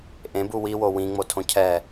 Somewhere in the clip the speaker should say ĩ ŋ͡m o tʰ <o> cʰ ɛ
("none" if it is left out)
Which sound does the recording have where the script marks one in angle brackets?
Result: õ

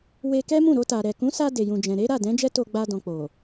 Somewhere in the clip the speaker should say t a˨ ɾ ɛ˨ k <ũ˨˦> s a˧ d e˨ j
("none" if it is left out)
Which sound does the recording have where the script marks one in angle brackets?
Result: ũ˨˦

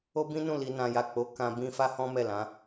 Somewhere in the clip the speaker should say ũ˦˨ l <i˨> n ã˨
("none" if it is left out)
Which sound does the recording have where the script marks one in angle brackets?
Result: i˨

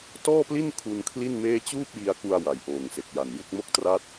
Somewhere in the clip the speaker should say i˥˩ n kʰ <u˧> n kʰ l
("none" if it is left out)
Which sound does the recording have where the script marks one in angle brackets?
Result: u˧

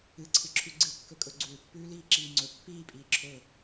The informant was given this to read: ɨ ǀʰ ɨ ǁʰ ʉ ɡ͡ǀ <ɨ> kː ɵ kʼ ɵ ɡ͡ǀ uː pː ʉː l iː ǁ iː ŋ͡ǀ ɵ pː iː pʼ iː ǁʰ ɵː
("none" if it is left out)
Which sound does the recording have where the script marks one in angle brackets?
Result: ɨ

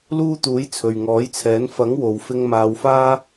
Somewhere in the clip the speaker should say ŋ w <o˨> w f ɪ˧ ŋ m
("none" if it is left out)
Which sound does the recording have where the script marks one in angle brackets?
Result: o˨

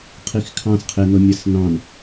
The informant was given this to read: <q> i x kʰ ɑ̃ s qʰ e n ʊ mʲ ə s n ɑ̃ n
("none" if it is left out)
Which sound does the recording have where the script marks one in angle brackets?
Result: qʰ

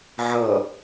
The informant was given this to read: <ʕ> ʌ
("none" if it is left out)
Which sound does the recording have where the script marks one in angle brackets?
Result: ʕ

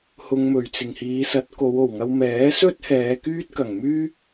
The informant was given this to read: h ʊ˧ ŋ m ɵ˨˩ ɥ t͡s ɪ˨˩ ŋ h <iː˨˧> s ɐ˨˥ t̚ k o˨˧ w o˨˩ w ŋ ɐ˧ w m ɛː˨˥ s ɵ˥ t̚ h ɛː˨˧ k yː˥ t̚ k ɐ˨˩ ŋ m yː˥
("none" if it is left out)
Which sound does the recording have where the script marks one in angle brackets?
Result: iː˨˧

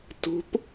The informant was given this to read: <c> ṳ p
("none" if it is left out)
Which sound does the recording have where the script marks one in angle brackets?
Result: t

